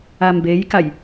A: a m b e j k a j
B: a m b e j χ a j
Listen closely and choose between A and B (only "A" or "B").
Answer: A